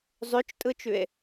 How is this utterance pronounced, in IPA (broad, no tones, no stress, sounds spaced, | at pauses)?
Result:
zˤ ø t͡ʃ tʼ ɯ t͡ʃ ʉ e̯